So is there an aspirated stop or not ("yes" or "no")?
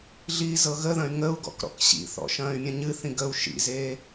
no